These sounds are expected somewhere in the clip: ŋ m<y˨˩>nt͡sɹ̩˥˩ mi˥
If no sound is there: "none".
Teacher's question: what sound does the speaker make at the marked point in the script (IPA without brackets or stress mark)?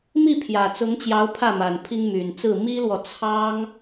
y˨˩